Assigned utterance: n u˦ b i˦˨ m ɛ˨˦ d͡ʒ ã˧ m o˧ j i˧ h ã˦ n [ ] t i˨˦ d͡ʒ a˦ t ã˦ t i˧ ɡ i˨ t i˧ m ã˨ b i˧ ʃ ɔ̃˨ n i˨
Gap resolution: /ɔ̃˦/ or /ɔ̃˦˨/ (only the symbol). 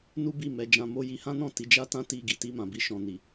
ɔ̃˦˨